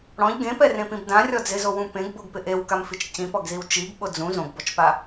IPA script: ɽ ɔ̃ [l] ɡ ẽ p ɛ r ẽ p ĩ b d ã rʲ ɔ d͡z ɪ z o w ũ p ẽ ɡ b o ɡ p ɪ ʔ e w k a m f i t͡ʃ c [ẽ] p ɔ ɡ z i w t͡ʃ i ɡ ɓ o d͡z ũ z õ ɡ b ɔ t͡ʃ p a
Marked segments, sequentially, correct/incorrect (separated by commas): incorrect, incorrect